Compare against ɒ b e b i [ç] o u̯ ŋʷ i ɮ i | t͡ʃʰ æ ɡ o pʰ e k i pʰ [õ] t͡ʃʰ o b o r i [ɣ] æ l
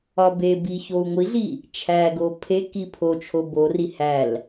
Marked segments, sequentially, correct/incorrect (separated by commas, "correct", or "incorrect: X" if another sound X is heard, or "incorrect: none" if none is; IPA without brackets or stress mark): correct, incorrect: o, incorrect: h